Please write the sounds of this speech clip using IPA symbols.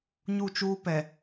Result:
ɲ u˦˨ t͡ʃ uː˦ p ɛ˨

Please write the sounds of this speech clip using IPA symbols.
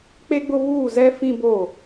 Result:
k͡p e˦ ɡ͡b ʊ˦ β uː˦˨ z ɛ˦ f ĩ˦ b o˦˨

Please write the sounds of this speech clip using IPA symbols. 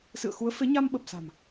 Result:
s ɨ̰˧˨ ə̯ x u˨˦ ə̯ f e˨˦ ɲ a˧ m ɓ ə˨˩ p̚ s a̤˨˩ m

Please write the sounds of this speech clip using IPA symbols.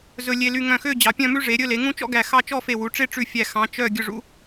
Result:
z ɵ˧ lʲ e˧ l y˧ ŋ œ̃˧˩ x ø˥˧ d͡ʑ ɑ˩˧ pʲ œ̃˥˧ m ʉ˥ ʐ e˩˧ ɾʲ ɵ˥˧ l e˩˧ ŋ ũ˥ t͡ʃ ɔ̰˥ ɡ æ˧˩ x ɑ˥˧ t͡ʃ ɔ˥˧ f e˧˩ w u˩˧ ʈ͡ʂ e˥˧ ʈ͡ʂ ʉ˧˩ fʲ æ˧˩ x ɑ̃˩˧ t͡ʃ œ˧˩ ɡʲ ɵ˧˩ ʐ ṵ˧

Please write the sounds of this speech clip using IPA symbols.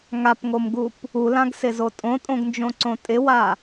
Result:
ŋ a p ŋ o m ɡ u p | u l ã ɡ s ɪ z o tʼ õ tʼ õ ɡ n d͡ʒ õ ǀ õ tʼ ɪ w a

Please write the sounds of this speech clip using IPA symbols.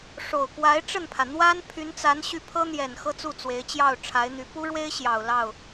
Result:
ʂ o˨˩ ʊ̯ k w a˧˥ ɪ̯ ʈ͡ʂ ə˥˩ n pʰ ä˩ n̪ w a˥ n pʰ y˧˥ n t͡s a˧˥ n ɕ y˥˩ pʰ ɤ˥ n̪ j ɛ˨˩ n x ɤ˥ t͡s u˥˩ t͡s w e˧˥ ɪ̯ t͡ɕ j ɑ˥˩ ʊ̯ ʈ͡ʂʰ a˧˥ ɪ̯ n̪ y˧˥ p u˥ ɻ w e˥ ɪ̯ ɕ j ɑ˨˩ ʊ̯ l ɑ˥˩ ʊ̯

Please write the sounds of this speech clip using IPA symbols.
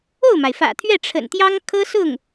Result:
o˥˩ ʊ̯ m a˩ ɪ̯ f ä̰˨˩ t̪ʰ ɥ ɛ˥˩ ʈ͡ʂʰ ə̰˨˩ n t̪ j ɑ˥ ŋ kʰ ɤ˥ s ʊ˥˩ ŋ

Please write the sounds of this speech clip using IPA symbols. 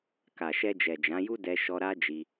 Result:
k a˨ ʃ ɛ˧ d͡ʒ ɛ˨ d͡ʒ ã˨˦ j u˦ d ɛ˧ ʃ ɔ˧ ɾ a˦ d͡ʒ i˦

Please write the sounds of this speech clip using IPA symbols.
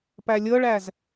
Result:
p æ lʲ ɤ ɭ æ z

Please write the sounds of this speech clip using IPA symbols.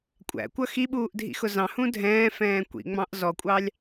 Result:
kʷʼ æ̰ kʷ ʌ x i ɓ uː ʔ dʱ ḭ x ʊ z ɑ̃ h ũ dʱ ɛ̃ː f ɛ̃ː kʷ ḭ ŋ͡m ɑ̃ ʔ z ɔ kʷʼ ɑ lʲ

